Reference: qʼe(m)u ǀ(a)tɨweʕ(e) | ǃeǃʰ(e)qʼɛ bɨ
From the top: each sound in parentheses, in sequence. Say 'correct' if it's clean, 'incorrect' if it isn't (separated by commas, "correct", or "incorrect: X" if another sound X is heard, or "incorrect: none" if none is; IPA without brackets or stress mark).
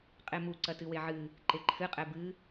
correct, incorrect: ɐ, incorrect: ɨ, incorrect: ɨ